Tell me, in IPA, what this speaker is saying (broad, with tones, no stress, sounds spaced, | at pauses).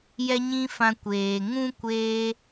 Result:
j ɛ˧ ɲ ĩ˧ f ã˧ kʷ eː˨ ŋ ũ˦ kʷ eː˧